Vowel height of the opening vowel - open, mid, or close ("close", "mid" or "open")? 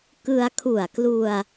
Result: close